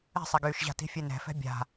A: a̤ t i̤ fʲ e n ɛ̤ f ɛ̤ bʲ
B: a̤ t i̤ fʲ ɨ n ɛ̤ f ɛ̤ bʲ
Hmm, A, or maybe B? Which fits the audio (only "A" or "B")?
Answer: A